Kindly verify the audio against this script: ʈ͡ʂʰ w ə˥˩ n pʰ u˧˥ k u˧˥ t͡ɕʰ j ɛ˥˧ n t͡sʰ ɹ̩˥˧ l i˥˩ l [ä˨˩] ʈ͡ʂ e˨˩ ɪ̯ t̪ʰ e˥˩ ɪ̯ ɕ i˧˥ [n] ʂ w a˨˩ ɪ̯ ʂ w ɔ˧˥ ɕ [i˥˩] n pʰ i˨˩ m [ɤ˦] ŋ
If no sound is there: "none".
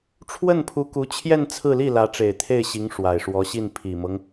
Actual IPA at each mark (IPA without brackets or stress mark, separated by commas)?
ä˧˥, ŋ, i˥˩, ɤ˦